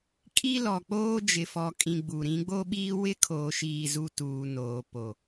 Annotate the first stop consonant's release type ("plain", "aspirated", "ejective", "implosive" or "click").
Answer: ejective